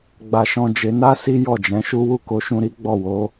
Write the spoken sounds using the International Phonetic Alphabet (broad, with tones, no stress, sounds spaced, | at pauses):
ɡ͡b a˧ ʃ ɔ̃˧ d͡ʒ e˧ n a˦ s i˦ j ɔ˦˨ d͡ʒ ɛ̃˨˦ ʃ u˦ w u˦˨ k o˨˦ ʃ ũ˧ ɾ i˦ ɡ͡b ɔ˦˨ w o˨˦